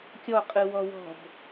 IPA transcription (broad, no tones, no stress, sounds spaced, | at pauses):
kʲ ɔ qʼ ɯ w ɔ w ɔ̤ b